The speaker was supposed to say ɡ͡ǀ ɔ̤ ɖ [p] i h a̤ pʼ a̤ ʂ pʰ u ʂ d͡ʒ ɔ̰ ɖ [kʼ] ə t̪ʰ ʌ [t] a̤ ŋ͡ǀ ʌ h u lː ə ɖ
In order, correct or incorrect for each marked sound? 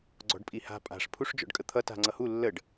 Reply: incorrect, correct, correct

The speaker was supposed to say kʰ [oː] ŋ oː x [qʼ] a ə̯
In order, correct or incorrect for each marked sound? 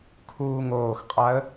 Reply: incorrect, correct

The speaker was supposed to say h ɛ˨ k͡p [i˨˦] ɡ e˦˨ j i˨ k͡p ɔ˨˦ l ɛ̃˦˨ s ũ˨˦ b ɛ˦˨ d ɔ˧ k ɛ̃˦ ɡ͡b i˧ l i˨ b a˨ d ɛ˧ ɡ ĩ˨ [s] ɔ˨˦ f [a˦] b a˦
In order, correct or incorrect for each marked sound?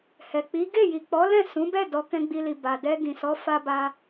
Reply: correct, correct, correct

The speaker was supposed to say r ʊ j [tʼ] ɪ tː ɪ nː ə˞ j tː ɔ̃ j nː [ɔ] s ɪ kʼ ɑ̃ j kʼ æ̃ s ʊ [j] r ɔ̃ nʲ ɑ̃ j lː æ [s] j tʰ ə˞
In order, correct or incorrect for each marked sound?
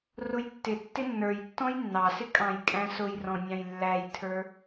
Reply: incorrect, incorrect, correct, incorrect

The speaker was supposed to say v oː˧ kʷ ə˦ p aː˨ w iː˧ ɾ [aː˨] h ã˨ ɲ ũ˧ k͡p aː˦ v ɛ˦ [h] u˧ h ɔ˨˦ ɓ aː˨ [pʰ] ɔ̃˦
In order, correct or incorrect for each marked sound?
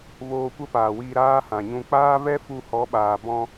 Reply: incorrect, incorrect, incorrect

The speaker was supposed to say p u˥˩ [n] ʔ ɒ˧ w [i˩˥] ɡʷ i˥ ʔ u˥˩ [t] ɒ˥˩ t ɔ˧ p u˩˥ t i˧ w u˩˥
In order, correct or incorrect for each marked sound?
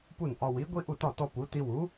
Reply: correct, correct, correct

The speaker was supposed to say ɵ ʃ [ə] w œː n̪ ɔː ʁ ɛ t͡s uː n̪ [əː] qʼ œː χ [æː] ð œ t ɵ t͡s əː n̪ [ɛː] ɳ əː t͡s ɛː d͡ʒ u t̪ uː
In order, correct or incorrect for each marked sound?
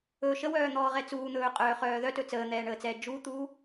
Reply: correct, incorrect, incorrect, correct

